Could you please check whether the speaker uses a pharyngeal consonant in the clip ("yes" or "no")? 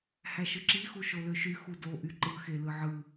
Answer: yes